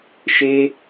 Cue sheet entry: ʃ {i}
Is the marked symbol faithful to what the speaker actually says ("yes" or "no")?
no